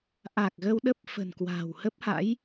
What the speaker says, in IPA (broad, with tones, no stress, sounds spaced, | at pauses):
ʔ a˨˩ k̚ ɣ ə˧ w ɗ ə˦˥ p̚ f ə̤˨˩ n k w a̤ː˨˩ w h ə˦˥ p̚ h a̰˧˥ j